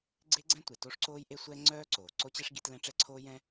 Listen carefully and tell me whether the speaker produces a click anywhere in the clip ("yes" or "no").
yes